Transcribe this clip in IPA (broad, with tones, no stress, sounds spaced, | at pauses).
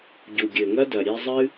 ɟ u˨ ɡʲ ɘ˨ ŋ ɐ˦ d ɐ˨ ɾʲ e˧ zˤ ɨ˦